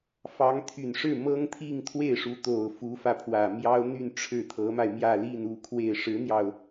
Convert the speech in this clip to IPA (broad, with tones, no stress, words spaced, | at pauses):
fɑ˧˥ŋt̪ʰy˨˩nʂɻ̩˥˩ mɤ˥ŋt̪ʰi˥˧ŋ t̪ʰwe˥˩ɪ̯ʂu˧˥t̪o˨˩ʊ̯ fu˧˥fä˧pʰwä˨˩ mjɑ˥ʊ̯n̪y˥˧n ʈ͡ʂʰɻ̩˥˩ t̪ʰɤ˧˥ma˧ɪ̯ mjä˥˧li˥˧nu˥˧kʰwe˥˩ɪ̯ ʂɻ̩˧˥n̪jɑ˧ʊ̯